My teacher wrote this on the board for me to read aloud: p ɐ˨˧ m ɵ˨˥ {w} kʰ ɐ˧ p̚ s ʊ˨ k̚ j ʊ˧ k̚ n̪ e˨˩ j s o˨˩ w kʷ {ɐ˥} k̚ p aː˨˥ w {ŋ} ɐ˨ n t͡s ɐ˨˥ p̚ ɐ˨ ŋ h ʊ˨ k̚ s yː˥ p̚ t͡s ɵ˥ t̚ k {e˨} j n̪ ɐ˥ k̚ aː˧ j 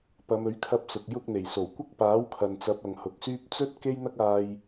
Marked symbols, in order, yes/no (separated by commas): no, yes, no, no